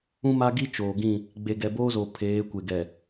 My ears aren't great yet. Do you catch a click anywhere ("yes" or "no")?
no